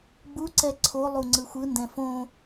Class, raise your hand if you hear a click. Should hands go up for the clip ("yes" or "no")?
yes